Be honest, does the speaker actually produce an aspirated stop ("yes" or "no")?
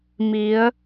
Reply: no